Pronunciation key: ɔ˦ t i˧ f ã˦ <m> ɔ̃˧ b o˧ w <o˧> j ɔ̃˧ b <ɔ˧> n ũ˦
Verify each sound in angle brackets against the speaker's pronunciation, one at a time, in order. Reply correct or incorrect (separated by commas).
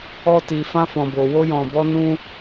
incorrect, incorrect, incorrect